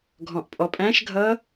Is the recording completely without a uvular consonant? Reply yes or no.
yes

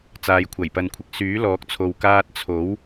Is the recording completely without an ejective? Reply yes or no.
yes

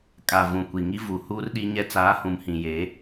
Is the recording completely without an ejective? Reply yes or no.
no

